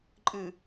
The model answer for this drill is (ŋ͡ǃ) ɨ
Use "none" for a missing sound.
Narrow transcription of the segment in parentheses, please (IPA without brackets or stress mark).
ǃʼ